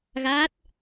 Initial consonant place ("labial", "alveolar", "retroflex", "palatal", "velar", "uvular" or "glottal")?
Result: velar